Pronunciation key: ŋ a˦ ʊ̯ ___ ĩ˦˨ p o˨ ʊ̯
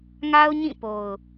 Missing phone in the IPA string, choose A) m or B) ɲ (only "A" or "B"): B